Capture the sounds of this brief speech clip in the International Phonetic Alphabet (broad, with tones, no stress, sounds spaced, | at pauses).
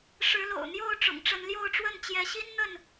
ʂ ɻ̩˨˦ l o̰˨˩ ʊ̯ n̪ j o˥˨ ʊ̯ ʈ͡ʂ ʊ̰˨˩ ŋ ʈ͡ʂ ə˨˦ n l j o˥˨ ʊ̯ ʈ͡ʂ w ə˥˨ n t͡ɕ j ɛ˨˦ ɕ i˦ n n̪ ə˥˨ n